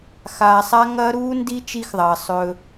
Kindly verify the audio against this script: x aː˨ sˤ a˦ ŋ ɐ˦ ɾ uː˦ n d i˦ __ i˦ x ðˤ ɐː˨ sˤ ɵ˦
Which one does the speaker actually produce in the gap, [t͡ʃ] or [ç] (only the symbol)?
t͡ʃ